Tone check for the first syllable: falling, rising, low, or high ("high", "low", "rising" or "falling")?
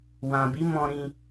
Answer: low